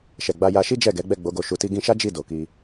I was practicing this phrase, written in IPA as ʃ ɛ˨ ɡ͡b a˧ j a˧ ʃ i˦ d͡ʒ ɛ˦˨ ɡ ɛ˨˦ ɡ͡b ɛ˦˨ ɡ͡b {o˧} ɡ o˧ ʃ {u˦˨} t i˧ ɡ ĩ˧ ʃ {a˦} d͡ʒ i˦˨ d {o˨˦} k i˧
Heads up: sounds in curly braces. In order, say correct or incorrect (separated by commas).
correct, incorrect, correct, incorrect